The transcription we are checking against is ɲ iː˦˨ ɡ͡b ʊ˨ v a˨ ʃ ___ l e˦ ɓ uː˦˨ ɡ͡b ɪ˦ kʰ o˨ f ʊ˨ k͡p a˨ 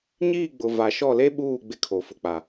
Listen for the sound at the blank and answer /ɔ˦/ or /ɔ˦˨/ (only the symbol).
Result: ɔ˦˨